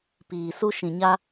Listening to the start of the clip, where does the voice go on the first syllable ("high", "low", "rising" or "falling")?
low